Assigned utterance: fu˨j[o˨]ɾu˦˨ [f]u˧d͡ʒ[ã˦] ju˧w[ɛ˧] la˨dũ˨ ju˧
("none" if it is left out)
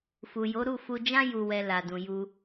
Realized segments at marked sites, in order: o˨˦, f, ã˦, ɛ˧

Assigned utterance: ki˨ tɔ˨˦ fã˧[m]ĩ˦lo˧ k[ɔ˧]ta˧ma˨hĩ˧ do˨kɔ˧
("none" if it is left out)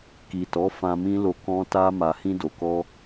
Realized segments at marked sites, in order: m, ɔ̃˧

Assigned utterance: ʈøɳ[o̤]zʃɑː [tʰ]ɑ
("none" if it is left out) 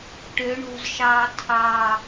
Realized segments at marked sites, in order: o̤, tʰ

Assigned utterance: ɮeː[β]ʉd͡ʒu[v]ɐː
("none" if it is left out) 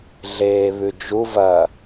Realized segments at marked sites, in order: β, v

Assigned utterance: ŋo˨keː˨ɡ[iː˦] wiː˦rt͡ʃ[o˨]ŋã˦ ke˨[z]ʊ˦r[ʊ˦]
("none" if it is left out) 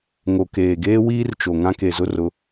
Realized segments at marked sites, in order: eː˦, o˨, z, ʊ˨˦

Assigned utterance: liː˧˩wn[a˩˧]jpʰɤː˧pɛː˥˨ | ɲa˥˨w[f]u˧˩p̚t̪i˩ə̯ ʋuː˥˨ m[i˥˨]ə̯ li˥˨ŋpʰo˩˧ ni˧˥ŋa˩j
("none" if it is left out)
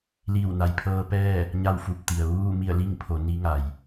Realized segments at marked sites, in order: a˩˧, f, i˥˨

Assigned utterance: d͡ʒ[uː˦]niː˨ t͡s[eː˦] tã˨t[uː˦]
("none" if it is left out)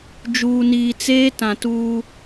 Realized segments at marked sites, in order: uː˨, eː˦, uː˦

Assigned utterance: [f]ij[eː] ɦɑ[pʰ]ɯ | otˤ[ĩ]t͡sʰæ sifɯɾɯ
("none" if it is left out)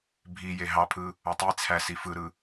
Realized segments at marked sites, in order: bʱ, e, pʰ, i

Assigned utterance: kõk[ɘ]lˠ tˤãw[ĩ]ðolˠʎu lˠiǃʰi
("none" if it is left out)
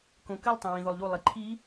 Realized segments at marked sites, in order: ɘ, ĩ

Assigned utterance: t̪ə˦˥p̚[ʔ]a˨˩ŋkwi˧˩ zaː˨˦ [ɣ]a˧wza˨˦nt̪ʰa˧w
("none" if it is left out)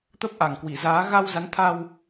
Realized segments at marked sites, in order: ʔ, ɣ

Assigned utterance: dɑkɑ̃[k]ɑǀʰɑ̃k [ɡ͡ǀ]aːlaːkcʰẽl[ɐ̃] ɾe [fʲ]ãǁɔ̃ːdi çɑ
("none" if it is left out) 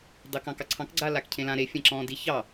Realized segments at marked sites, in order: k, ɡ͡ǀ, ã, fʲ

